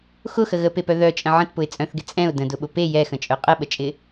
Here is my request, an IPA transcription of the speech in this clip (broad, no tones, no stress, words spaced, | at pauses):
xʊxə ɣəpepœ ðœt͡ʃʼə̃ ʕə̃tpʊɪ̯ t͡sʼœ̃θɡɪ t͡sʼɛ̃ʊ̯ də̃dʊɓʊ pe jɛxə̃t͡ʃʼœ qʼəɓət͡ʃʼɪ